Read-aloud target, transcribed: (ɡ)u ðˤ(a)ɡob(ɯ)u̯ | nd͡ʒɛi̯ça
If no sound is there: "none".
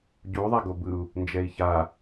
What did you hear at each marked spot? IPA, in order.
ɟ, a, ɯ

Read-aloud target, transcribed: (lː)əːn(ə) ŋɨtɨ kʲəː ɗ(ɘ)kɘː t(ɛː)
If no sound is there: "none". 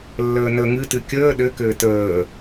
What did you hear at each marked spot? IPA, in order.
lː, ə, ɘ, əː

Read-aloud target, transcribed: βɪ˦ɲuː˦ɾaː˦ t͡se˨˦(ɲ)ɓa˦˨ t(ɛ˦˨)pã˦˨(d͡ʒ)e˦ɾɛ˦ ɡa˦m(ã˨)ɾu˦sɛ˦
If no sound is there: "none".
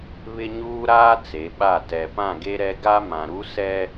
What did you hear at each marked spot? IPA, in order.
none, ɛ˨, ɡ, ã˨

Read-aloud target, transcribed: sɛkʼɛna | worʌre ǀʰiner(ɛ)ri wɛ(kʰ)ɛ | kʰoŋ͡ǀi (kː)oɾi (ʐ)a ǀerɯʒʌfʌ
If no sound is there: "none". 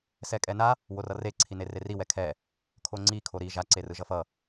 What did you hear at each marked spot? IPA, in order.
e, kʰ, kʰ, ʒ

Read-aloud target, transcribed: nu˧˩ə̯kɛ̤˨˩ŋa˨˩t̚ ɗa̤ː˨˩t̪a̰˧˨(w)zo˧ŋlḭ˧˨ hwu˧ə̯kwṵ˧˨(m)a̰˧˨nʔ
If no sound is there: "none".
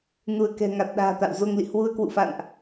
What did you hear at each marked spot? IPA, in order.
w, f

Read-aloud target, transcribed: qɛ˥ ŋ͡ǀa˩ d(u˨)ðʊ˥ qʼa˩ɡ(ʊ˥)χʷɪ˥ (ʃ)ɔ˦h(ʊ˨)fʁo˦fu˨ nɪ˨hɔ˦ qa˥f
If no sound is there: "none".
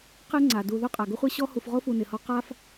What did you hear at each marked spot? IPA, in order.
u˨, ʊ˥, ɕ, u˨

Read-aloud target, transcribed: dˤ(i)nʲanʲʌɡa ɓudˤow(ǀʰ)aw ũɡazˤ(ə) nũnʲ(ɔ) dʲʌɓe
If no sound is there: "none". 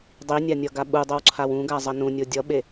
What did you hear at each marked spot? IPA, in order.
i, ǀʰ, ʌ, o

